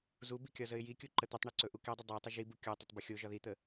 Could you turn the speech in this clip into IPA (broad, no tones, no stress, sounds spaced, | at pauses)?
z u b i kʲ ɒ z ə ɪ̯ j i kʲ u ǃ ə t̪ ə tˤ ɳ ɵ ǀ ɵ ʔ u k i dˤ ə dˤ ɵ ɪ̯ tˤ ə ʒ i b u kʲ o tˤ ə tˤ b ə xʲ o ʒ ɒ ð i t̪ ə